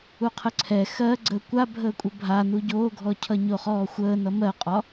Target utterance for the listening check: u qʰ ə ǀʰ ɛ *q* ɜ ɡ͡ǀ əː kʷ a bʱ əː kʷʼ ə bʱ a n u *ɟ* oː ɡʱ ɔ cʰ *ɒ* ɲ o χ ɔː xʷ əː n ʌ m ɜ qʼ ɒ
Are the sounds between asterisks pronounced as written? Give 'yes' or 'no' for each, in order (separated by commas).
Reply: no, yes, no